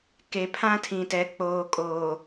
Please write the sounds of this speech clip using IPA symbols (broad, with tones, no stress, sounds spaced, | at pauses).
k e˨ pʰ ã˦ tʰ ĩ˨ t ɛ˨ k͡p oː˨ kʼ oː˨